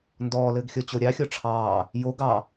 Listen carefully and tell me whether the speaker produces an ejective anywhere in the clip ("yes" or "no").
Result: no